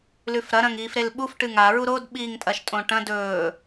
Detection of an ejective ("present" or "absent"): present